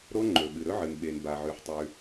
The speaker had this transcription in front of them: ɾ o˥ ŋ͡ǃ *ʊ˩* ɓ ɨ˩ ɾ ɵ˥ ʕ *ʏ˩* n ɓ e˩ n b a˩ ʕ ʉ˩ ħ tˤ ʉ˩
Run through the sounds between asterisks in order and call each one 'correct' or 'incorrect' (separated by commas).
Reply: incorrect, incorrect